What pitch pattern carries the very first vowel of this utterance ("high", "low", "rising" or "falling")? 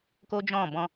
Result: high